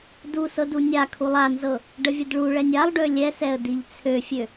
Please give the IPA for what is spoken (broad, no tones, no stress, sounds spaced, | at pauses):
d u s ɤ d u nʲ a kʰ u lˠ a n z ɤ | ɖ ə vʲ ə d ɭ u ɭ ɛ nʲ a lˠ ɖ ø lʲ ɛ s ɛ ə̯ d i ʎ t͡sʰ ø fʲ ø